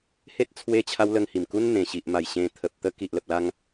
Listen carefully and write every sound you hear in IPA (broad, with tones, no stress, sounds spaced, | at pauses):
h e˦ t̚ t͡sʰ w e˧ t͡ɕʰ a˧ w l ə˧ ŋ h i˨˩ m k u˦ n n̪ ẽ˨˩ ɕ i˨ ʔ m a˨˩ j ɕ ẽ˧ t̪ʰ ə˨ p̚ t̪ ə˦ k i˨ ʔ l ə˨ p̚ l a˧ ŋ